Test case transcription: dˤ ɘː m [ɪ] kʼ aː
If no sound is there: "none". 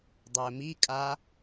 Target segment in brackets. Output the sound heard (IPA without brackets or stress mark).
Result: i